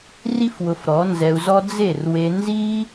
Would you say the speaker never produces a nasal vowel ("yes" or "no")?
yes